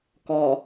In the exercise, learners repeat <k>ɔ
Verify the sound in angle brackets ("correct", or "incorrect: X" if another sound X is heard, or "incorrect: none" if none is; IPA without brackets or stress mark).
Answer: correct